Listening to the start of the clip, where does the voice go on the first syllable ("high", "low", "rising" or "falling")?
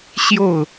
falling